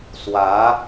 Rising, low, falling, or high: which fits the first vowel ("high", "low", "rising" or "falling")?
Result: rising